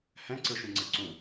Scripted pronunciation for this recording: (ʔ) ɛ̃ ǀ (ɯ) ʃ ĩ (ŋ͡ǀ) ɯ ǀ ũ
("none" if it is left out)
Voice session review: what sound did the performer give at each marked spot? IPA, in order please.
h, ɯ, ŋ͡ǀ

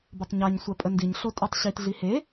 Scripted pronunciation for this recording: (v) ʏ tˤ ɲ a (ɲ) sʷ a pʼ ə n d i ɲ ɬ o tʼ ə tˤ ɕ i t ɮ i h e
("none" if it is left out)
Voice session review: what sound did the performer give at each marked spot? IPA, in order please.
b, ɲ

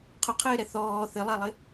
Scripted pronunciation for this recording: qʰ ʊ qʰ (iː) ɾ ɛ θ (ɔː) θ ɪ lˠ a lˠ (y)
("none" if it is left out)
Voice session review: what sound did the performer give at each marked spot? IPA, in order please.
ɪː, ɔː, ɪ

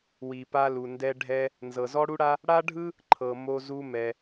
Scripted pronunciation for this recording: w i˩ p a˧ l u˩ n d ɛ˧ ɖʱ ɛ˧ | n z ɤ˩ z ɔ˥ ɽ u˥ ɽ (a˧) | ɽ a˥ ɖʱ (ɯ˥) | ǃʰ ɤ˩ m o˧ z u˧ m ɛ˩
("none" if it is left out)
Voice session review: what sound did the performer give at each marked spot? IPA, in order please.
a˥, ɯ˥

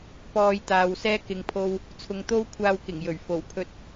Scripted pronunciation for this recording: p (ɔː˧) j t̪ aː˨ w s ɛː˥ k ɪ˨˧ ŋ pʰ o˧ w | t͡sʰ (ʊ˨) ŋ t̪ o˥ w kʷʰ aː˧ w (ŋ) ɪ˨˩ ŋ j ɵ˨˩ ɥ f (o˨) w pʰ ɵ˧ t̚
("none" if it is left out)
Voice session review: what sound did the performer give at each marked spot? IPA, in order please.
ɔː˧, ʊ˨˧, k, o˨˩

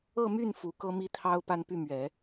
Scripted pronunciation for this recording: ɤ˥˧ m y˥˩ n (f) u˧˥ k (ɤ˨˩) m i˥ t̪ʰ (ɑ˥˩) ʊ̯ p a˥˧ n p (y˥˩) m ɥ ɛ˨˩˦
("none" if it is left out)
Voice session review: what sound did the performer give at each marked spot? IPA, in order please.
f, ɤ˥, ɑ˥, y˥˩

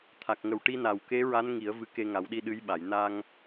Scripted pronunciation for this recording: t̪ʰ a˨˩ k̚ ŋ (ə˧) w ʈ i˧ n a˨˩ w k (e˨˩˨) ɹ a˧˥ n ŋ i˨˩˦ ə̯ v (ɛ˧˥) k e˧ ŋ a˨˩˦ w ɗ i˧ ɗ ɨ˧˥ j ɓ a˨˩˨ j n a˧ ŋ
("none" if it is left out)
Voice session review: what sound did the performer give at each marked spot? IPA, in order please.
ə˨˩, e˧˥, ɨ˧˥

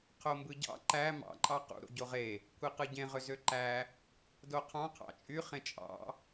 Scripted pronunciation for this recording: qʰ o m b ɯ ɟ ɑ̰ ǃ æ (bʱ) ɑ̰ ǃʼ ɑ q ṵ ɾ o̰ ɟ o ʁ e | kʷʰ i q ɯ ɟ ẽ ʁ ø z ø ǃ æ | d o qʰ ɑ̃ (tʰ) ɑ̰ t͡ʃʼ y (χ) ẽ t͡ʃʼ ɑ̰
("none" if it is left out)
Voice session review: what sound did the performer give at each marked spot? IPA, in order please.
m, qʰ, χ

